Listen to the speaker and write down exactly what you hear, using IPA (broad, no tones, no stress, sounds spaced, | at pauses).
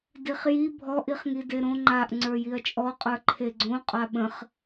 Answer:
d i χ j i bʱ ɔ ʔ i χ ŋ i d e ɾ õ ŋ͡ǃ a ʔ ŋ͡ǀ ə˞ j i ɐ̯ t͡ʃʼ ɔ qʼ ə˞ ǃʰ e ɡ͡ǀ õ qʼ a ɓ ə̃ χ